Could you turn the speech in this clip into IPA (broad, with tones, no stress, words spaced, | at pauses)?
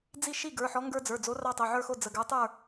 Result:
d͡zi˥˨ ʃi˥˨ɡə˞˩˧˩ħɔ˨˥ ŋɡə˞˦d͡zə˞˩˧˩d͡zo˨˥ rɑ˦tˤo˩˧˩ʕə˞˥˨xo˥˨ d͡zə˩˧˩ ɡə˞˨˥tˤə˞˥˨